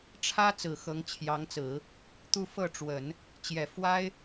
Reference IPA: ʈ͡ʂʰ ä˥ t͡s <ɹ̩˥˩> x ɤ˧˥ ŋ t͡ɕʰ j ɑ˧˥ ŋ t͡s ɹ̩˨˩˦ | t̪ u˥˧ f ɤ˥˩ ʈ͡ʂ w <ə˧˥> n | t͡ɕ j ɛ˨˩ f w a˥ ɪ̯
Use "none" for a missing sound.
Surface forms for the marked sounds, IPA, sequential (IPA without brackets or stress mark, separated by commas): ɹ̩˨˩, ə˨˩˦